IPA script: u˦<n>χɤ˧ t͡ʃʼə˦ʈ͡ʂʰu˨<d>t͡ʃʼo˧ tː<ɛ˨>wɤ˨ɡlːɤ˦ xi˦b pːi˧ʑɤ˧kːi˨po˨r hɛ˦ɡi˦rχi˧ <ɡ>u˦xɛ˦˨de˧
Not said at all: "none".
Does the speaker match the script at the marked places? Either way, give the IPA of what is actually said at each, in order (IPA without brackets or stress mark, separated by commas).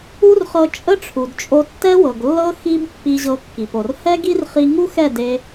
r, d, ɛ˦, ŋ